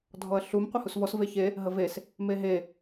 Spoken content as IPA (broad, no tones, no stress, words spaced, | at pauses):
dʱɔɐ̯ɬum qʷəhusvɔs veçe | ɦəves | meɦe